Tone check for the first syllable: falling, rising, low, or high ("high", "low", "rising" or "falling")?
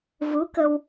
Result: rising